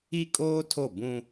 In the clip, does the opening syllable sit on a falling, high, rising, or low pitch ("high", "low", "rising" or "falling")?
high